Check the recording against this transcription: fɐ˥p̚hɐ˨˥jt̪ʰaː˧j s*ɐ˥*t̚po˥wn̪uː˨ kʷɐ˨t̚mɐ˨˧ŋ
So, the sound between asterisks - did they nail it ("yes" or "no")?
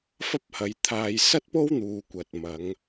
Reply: yes